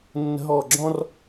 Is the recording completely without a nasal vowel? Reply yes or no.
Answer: no